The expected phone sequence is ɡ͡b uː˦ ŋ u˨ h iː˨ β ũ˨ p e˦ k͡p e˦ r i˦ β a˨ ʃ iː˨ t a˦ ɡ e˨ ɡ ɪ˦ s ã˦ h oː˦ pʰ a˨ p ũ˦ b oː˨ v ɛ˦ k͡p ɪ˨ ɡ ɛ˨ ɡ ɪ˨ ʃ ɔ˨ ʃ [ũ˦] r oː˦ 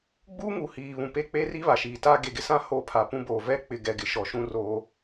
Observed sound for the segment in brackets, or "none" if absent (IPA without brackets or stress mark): ũ˦